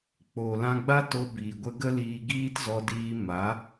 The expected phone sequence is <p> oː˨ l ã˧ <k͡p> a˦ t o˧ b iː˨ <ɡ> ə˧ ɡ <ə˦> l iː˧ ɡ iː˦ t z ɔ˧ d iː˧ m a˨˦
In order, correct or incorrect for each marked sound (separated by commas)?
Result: incorrect, incorrect, incorrect, correct